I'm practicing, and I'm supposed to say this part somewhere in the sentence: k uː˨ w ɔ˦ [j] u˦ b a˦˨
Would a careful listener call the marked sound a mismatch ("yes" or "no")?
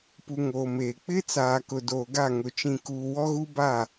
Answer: yes